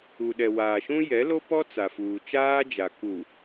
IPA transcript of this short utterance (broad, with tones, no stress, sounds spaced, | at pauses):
u˨ ɗ ɛ˨ w aː˨ ʃ ũ˦ j ɛ˨˦ l o˦ p ɔ˦ t͡s a˨ f uː˨ t͡ʃ aː˦ d͡ʒ a˨ k u˨